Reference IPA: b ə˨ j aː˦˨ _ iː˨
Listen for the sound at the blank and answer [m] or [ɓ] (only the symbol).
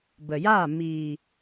m